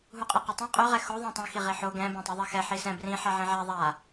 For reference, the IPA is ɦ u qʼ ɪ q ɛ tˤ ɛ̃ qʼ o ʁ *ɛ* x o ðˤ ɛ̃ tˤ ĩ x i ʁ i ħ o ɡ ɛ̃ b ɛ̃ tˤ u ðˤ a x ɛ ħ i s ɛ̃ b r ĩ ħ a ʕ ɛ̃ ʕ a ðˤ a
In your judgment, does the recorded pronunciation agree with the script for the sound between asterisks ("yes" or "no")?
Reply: yes